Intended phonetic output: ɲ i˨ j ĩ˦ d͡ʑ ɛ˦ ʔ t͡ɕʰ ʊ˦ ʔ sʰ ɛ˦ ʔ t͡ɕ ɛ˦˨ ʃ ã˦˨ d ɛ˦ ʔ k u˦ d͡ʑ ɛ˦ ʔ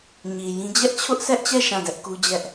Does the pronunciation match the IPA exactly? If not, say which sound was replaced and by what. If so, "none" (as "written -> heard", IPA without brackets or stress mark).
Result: none